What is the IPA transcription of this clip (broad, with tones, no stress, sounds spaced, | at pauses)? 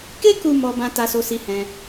k e˦ k u˧ m ɔ˦ b ã˦ t a˦ s o˦ s i˦ h ɛ̃˦